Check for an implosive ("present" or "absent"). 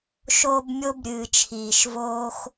absent